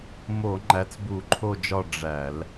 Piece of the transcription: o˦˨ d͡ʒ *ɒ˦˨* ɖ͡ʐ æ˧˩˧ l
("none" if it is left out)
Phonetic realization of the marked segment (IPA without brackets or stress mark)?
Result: ɒ˦˨